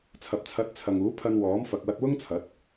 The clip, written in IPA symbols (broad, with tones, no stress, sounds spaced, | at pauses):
t͡sʰ ɐ˨ p̚ t͡sʰ ɐ˨˥ t̚ t͡sʰ ɐ˨ ŋ uː˨˥ pʰ ɐ˧ n w ɔː˨˥ m f ɐ˨ k̚ w ɐ˧ t̚ w ʊ˥ ŋ t͡sʰ ɐ˨˥ t̚